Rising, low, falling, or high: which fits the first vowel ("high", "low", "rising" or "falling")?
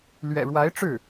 low